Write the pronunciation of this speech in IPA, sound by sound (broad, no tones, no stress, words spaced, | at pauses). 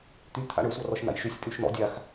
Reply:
t̪y t̪ʰa̰ɳɵ sʷarɔʃna̰jʃysʲ pʼyʃnɔ̰ dʲax